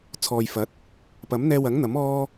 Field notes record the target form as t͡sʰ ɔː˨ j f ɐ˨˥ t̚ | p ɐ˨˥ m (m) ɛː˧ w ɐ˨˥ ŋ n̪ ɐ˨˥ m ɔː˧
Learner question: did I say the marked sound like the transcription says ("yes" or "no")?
no